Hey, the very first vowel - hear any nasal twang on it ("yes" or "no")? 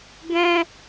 yes